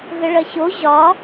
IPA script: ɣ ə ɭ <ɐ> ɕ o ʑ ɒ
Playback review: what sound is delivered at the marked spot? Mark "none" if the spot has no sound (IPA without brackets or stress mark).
ɐ